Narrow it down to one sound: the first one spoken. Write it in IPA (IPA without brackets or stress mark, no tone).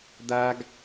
d̪